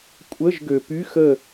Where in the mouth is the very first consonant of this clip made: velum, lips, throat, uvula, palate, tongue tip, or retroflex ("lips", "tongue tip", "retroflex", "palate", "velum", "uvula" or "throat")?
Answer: velum